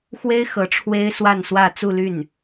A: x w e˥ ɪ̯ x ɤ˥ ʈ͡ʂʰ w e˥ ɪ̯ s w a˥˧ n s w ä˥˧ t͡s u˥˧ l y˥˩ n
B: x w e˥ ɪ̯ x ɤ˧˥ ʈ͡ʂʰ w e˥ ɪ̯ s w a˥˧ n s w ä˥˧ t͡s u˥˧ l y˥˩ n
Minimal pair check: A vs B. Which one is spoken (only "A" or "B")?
B